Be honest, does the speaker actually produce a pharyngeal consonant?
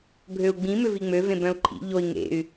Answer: no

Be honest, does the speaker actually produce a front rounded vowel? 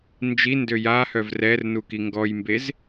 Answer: yes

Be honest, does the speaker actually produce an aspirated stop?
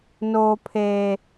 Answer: yes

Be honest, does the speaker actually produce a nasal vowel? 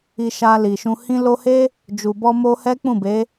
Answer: yes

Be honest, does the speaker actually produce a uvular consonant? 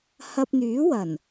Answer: no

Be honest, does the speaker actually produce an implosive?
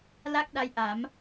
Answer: yes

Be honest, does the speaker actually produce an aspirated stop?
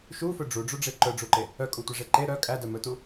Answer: no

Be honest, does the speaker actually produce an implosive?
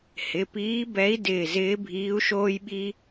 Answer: yes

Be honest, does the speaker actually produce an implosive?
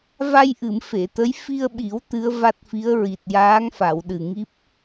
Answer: yes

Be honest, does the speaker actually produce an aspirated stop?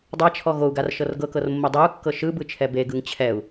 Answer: yes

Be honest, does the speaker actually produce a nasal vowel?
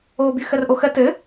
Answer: no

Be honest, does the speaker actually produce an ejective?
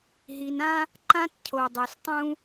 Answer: no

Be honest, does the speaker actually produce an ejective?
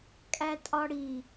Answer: yes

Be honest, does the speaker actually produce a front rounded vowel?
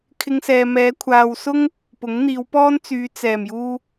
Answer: yes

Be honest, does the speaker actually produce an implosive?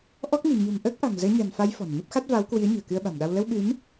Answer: yes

